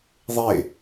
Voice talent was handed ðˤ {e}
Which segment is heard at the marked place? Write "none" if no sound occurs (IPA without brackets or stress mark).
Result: e